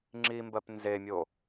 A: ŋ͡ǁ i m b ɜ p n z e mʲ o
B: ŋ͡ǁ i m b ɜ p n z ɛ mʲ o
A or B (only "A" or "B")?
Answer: A